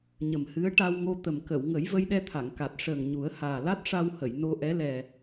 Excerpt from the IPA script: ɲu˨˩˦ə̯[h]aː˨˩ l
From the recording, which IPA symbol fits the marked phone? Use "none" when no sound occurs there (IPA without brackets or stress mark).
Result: h